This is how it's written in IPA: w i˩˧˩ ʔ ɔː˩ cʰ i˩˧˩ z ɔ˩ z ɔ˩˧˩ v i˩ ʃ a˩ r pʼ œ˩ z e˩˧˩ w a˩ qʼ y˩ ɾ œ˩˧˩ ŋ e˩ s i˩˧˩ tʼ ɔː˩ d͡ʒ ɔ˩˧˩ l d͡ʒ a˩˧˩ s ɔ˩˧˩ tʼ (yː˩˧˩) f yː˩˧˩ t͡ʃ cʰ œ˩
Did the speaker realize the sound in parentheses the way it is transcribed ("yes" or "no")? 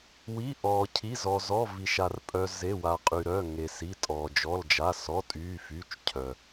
yes